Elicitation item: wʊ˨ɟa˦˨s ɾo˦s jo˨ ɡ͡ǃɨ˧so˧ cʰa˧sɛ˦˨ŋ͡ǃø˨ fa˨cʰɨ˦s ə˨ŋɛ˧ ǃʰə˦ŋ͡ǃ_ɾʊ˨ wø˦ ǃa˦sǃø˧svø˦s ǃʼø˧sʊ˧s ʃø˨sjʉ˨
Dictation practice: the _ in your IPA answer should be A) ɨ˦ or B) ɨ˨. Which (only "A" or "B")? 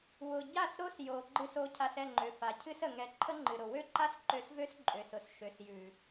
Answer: B